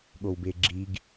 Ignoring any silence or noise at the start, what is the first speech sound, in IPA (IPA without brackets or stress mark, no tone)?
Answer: ɠ